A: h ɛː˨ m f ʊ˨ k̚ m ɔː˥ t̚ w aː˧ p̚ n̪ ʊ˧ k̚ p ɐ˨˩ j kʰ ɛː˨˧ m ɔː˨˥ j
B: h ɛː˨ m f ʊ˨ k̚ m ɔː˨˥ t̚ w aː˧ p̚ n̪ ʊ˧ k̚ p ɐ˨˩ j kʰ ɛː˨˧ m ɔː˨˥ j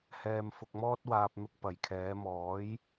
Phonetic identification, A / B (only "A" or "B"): A